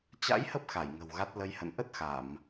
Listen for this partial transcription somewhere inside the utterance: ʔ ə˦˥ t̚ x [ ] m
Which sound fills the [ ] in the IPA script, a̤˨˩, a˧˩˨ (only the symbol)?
a˧˩˨